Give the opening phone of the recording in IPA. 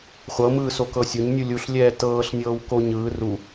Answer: χʷ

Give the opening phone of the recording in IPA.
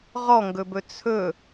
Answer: ʁ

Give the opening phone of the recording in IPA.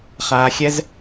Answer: χ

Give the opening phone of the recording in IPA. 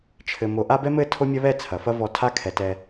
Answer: t͡ʃʰ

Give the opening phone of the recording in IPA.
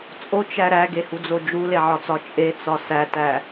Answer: t͡sʼ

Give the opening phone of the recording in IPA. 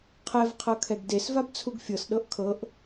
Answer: qʰ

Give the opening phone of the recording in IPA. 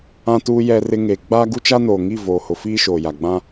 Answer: ã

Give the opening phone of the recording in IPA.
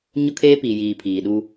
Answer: ɲ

